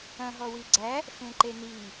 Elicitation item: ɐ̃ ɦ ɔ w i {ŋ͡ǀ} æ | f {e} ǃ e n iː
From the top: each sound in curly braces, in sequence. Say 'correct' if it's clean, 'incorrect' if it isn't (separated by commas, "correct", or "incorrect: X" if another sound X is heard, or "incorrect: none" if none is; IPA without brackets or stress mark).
incorrect: ɡ͡ǀ, incorrect: ẽ